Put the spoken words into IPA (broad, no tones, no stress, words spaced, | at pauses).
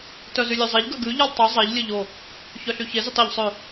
tœzylʲøzˤeʎ ɡœɡʉ ʎilˠtˤu zˤɛʎ lʲɵʎo | çœɬyçe zytˤeʎ sˤø